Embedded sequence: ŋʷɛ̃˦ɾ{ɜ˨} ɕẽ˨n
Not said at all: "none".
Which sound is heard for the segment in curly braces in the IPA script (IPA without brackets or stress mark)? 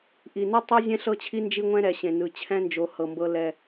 ɛ˨